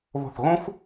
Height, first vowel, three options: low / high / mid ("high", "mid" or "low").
mid